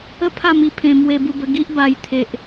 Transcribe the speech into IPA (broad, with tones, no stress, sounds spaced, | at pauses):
ə˥˧ pʰ a˥˧ m i˧ pʰ ẽ˧ m w e˧ b u˧ b ə˧ ɡ i˦ ʔ b a˦ j t̪ʰ e˦ ʔ